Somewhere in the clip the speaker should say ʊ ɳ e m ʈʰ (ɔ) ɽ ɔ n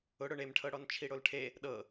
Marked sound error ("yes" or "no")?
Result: yes